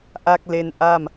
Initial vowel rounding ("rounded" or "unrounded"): unrounded